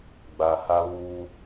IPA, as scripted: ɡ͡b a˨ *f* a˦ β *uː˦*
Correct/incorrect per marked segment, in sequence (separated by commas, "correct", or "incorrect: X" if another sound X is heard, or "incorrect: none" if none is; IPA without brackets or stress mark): incorrect: h, correct